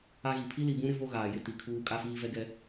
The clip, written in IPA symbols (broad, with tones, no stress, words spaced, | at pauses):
a˦ɣi˨ pʰi˦li˨bũ˦ɾɪ˦ vo˦ɣaː˨jɪ˦ ti˨kʰuː˦ kʼa˦fiː˦vɛ˦ɡɛ˦